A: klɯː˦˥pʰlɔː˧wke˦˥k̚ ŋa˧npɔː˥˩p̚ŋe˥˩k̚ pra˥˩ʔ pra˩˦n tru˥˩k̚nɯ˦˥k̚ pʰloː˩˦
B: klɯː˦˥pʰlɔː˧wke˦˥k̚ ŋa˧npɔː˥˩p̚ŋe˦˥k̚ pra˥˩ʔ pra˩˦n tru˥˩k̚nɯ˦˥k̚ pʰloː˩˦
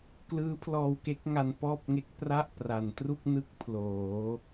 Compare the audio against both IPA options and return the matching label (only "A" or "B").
B